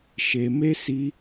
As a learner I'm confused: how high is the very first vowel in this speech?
mid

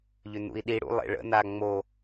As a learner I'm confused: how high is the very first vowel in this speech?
high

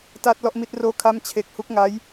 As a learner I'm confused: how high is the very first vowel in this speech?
low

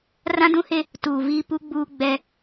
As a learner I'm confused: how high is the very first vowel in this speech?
low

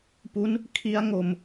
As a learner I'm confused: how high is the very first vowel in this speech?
high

